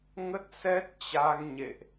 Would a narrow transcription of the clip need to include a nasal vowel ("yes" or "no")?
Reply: no